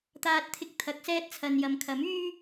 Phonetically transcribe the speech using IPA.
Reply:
t̪aː˧t̚t̪ʰɪ˧k̚t̪ʰɐ˨˥k̚sɛː˥t̚ t͡sʰɐ˨njɐ˨m kʰɐ˨˥myː˥

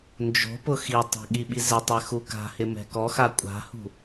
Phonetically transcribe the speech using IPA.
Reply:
nd͡ʒo̤pʊ xitˤɛ̤ ɠiɓizɪtˤɛ xuka̤hɪ mɛ̤kɔxa kʷʼa̤hṳ

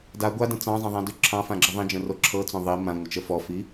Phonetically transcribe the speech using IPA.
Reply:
da ɡʷadə̃ t͡sɑ̃zˤə̃ðˤãdʉ ǁʰɑ̃fãɡ͡ǁə ðˤĩd͡ʒə̃ro ǁʰɤt͡sõ ðˤi mãŋʷət͡ʃə fɔfi

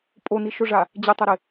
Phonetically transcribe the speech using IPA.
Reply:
pʼoniʃoʐa | d͡ʑɪtˤɛɾɪ

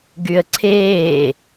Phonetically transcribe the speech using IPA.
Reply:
ɡyə̯ǀʰeː

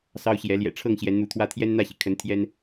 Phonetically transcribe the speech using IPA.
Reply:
sɑ˦ʊ̯ɕjɛ˨˦ ljɛ̰˨˩ʈ͡ʂʰɤ˥˨ŋ ɕjɛ˨˦nn̪u˨˦t̪ʰwä˦ t̪ʰjɛ˦nn̪ä˥˨ɕi˩kʰə˨˦n t̪ʰjɛ˦n

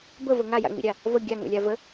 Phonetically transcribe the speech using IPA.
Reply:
bəvə ŋaja̰ŋ͡mḭɾʲa | və ɡʲaŋo̰lʲa və

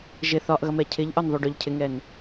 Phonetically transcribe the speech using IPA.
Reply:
ʒɪ θɒʔɣʌmɛ cʰɪʎʔɒn ðˤuɖʊʎ cʰɪŋɛn

